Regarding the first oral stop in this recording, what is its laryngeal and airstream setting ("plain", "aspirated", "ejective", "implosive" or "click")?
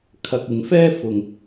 aspirated